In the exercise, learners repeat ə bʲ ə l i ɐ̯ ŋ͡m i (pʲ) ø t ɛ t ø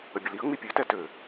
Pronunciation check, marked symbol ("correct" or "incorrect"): correct